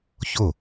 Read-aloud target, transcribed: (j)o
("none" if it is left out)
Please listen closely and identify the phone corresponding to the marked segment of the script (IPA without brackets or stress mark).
ç